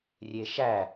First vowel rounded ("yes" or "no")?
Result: no